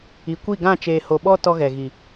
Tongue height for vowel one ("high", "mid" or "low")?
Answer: high